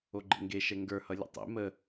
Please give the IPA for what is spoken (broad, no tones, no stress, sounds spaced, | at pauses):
o ɡ͡ǃ ḛ ŋ ɡ e ʃ ɛ ŋ ɡ ə˞ h ʌ lʲ ə̰ tˤ ḛ m ə